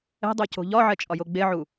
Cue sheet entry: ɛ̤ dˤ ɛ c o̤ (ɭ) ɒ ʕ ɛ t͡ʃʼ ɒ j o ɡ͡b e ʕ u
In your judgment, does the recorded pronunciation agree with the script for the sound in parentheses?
no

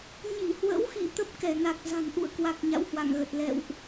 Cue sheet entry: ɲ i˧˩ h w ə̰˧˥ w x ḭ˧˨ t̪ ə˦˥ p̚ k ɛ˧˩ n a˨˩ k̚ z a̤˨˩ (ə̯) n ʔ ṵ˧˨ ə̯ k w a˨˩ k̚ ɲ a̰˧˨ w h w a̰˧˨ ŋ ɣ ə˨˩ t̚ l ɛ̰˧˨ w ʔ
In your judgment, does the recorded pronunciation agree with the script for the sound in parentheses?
no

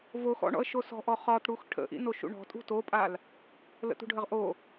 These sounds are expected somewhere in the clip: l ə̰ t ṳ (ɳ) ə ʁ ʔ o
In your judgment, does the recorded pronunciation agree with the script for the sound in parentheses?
no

